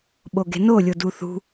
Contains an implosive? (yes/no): yes